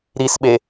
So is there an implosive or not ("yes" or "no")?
yes